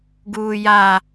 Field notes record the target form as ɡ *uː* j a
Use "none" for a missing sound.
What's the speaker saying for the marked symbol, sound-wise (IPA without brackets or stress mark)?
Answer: uː